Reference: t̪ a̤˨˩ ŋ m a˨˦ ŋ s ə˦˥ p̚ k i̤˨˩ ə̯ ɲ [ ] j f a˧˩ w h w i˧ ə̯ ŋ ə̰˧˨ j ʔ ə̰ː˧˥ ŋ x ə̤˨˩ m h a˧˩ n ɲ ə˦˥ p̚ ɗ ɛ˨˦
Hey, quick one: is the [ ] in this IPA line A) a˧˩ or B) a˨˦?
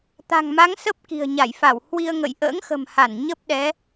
A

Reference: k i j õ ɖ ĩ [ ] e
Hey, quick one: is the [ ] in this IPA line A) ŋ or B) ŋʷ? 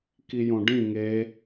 A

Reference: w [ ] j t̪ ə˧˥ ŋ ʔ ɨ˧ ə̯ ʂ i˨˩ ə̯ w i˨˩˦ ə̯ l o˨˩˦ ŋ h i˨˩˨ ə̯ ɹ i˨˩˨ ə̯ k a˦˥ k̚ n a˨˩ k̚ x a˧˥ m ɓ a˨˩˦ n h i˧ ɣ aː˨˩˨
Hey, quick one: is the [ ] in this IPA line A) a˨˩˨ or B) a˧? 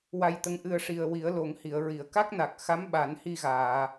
B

